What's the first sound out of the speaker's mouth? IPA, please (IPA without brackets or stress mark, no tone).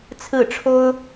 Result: t͡sʰ